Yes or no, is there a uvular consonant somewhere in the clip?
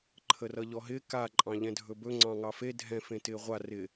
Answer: yes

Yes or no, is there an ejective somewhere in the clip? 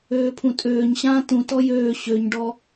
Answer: yes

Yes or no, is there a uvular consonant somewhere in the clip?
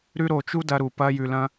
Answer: no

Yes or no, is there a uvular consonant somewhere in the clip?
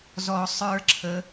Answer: no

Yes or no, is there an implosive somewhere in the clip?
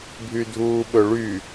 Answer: yes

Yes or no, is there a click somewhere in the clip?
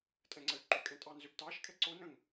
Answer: yes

